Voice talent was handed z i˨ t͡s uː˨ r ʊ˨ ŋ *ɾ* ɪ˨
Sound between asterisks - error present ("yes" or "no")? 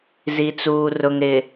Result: no